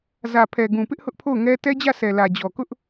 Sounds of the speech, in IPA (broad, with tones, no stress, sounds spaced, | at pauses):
z ä˨ pʰ ɛ˨ ɡ ũ˨ p ɪ˦ ʔ h ʊ˦ ʔ pʰ o˦˨ ʊ̯ ŋ ɛ˦ t ɛ˦ d͡ʑ ä˦˨ s ɛ˨ l ä˨ d͡ʑ ɔ˨ k ʊ˦ ʔ